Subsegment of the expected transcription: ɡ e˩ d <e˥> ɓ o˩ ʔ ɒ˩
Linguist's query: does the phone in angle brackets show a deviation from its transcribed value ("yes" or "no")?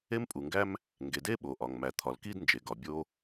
no